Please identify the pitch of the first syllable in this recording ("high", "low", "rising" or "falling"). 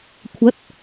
rising